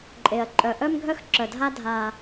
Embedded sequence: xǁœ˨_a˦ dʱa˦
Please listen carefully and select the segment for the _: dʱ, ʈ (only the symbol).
dʱ